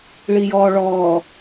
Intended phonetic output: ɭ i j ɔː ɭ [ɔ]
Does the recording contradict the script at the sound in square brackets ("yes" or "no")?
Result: yes